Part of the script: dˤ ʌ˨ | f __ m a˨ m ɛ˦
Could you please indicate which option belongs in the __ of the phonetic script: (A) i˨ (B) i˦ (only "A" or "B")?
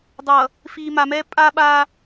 A